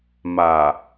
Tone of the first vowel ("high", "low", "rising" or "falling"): low